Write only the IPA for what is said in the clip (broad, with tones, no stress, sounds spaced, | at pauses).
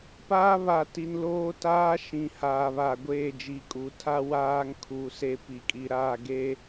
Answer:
p aː˦ β a˨ t i˨ n l oː˦ t aː˦ ʃ ĩ˨ h aː˨ β aː˨ ɡʷ eː˦˨ d͡ʒ i˨ kʼ u˨ tʰ a˦ w aː˦ ŋ kʰ uː˨ s e˦ p i˨ kʼ i˨ ɾ aː˦˨ ɡ e˦